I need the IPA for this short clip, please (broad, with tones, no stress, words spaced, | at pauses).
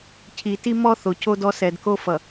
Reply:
cʰi˨ ti˦ mɔ˦ θo˨co˦dɔ˦ sɛ˨dko˦ fʌ˨